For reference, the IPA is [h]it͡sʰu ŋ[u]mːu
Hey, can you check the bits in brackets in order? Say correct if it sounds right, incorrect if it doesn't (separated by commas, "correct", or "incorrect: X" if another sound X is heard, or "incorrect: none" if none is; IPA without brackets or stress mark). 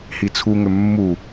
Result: correct, incorrect: ʏ